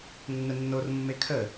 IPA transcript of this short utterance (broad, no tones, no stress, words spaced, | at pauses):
nːənːormːe kʰə